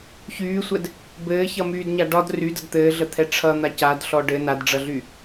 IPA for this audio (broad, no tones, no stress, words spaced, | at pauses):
çyːsʷɛd | bɘːçʌmyːdɲa ɖɒd rydəd t̪ɘːɮət̪ʰɛ ʈ͡ʂʰʌn̪a cadɬɔ ɖɘ nadɖ͡ʐʌɮy